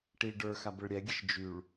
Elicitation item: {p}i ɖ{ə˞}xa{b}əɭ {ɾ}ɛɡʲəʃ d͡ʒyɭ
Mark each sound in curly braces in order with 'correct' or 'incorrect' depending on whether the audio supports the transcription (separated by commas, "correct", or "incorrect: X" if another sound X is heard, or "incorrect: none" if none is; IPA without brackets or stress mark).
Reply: incorrect: ʈ, correct, correct, incorrect: ɾʲ